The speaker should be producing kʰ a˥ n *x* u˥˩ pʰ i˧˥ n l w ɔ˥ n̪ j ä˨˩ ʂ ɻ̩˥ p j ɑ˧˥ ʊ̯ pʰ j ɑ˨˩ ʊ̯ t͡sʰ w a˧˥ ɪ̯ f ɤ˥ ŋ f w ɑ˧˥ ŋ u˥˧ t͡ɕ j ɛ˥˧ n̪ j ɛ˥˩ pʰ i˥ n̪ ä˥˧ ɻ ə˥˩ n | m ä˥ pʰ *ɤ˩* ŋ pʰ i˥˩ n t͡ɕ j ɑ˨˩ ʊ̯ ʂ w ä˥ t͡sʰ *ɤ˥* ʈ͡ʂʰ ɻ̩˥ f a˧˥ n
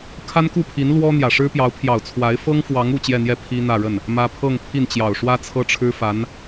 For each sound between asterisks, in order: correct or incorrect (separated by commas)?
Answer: incorrect, incorrect, correct